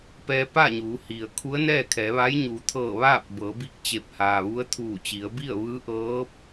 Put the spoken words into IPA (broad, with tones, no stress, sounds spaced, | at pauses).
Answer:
p ɛː˧ p a˥˨ ɲ uː˩˧ h i˩ ə̯ kʰ u˧˥ ə̯ n ɛː˥˨ kʰ ɛː˩˧ ʋ a˧˥ j ɲ uː˩˧ t̪ʰ ɤː˧˩ ʋ aː˥˨ p̚ b ɤː˩˧ b i˧ k̚ t͡ɕ e˧˩ p̚ h aː˩ ʋ u˧˥ ə̯ t̪ʰ uː˧˩ t͡ɕ i˩˧ ə̯ b i˥˨ ə̯ ʋ ɯː˧˥ ʔ ɤː˧˥ p̚